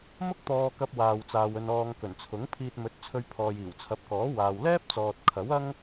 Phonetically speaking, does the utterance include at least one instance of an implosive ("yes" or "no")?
no